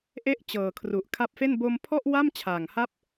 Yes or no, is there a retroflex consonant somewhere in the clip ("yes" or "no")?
no